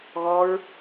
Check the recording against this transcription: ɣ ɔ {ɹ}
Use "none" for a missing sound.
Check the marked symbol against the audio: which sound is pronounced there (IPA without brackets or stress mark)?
ɹ